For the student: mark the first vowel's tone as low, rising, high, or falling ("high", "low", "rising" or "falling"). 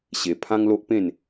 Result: low